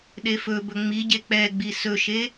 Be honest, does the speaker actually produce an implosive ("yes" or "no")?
yes